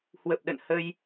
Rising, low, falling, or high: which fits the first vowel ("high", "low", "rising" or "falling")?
low